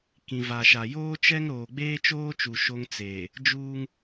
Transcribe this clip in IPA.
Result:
kĩ˨va˨ʃa˨ joː˦t͡ʃɛ˦ŋ ɾoː˨ɡ͡beː˦t͡ʃoː˦t͡ʃu˨ ʃo˦ŋt͡seː˨ | d͡ʒuː˦ŋ

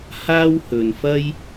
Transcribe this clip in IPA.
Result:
haː˥whɵ˨nfɐ˥j

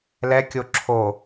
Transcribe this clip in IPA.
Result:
lɛkʲo ǁʰo

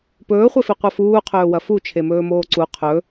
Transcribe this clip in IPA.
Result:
pɵːχʷefi qʷɐfuːqʰɵː wɐfu t͡ʃʰemɵːmoːǀu qʰɵ

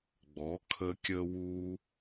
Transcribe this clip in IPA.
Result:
ɡ͡bɔ˩˥ kʰə˧kʲə˧wu˧

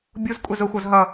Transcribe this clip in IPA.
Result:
bʲuz kʷʼɛzʊxʷʌz ɦʌ

